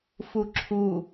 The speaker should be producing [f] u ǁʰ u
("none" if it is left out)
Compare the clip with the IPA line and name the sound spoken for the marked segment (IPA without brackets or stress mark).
f